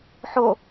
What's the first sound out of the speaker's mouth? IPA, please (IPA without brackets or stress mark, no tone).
ħ